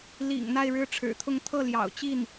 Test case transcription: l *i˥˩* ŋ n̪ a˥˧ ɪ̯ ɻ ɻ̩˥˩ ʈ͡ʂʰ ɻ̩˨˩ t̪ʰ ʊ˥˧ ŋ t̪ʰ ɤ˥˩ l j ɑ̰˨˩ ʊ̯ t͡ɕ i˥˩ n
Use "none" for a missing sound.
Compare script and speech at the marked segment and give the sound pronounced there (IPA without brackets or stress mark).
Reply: ḭ˨˩